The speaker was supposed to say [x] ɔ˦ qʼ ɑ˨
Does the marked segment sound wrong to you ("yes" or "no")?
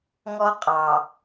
yes